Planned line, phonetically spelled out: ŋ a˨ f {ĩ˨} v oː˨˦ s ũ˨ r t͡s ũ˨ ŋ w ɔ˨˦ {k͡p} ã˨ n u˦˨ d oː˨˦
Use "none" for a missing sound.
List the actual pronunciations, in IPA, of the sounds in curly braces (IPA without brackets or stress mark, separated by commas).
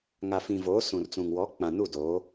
ĩ˨, k͡p